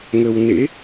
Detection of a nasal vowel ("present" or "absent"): absent